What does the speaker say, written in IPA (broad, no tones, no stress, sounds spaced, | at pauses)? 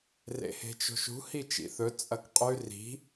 r ḛ h e̤ t͡ʃ o̤ ʃ ṳ h i t͡ʃ ḭ θ ɵ t͡sʼ ɐ k qʼ ʉ r i̤